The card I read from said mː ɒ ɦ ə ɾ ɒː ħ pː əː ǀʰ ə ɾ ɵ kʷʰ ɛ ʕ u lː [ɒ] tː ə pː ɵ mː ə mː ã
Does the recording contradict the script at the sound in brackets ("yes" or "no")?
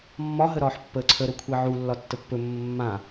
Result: no